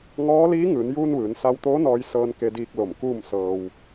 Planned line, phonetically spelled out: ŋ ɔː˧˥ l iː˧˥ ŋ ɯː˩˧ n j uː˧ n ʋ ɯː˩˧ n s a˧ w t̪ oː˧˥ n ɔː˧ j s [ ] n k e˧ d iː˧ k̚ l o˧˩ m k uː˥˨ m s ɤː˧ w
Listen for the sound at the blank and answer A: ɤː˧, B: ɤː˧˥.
A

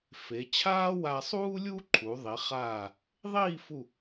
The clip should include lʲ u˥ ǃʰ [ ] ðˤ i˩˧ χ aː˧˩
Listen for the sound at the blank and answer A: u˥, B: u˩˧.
B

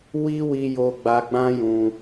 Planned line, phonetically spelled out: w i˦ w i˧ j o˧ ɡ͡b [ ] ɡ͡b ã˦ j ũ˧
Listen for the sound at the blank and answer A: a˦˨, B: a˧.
B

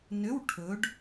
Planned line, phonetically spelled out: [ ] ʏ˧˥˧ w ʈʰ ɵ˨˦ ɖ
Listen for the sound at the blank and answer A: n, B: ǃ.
A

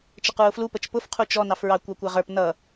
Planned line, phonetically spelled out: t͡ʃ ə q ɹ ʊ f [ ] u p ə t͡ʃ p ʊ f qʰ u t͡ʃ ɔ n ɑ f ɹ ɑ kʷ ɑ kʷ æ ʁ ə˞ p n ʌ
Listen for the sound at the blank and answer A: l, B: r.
A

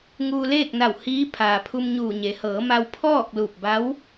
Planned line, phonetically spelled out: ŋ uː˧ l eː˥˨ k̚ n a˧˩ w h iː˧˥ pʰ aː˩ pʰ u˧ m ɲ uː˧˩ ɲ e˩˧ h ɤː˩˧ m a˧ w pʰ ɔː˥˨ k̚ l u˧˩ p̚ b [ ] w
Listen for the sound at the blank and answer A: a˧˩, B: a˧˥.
B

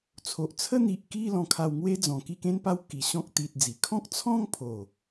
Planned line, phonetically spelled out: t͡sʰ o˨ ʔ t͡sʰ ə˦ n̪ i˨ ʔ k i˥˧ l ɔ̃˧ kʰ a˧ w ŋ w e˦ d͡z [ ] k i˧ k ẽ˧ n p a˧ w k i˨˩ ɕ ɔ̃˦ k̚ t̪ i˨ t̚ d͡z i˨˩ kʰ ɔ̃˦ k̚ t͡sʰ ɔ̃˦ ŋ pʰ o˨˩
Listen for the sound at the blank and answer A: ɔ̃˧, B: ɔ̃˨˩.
B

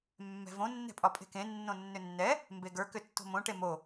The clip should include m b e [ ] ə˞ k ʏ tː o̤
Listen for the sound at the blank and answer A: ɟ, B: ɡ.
B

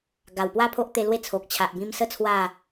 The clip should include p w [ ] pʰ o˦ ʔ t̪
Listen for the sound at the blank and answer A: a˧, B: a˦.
B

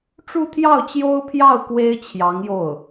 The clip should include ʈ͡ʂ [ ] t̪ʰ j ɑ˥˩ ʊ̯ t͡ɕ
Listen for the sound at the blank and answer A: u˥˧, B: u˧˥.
A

